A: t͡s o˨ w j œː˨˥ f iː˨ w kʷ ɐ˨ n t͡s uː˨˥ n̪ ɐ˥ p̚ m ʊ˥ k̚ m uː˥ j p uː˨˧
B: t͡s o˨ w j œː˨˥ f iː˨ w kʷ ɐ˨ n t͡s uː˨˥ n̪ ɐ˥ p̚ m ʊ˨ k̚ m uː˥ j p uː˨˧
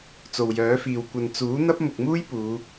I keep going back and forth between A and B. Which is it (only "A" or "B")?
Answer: B